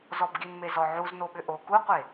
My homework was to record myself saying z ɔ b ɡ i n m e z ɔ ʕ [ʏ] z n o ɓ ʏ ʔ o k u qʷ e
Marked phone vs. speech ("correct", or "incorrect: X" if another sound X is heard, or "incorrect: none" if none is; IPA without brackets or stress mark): incorrect: u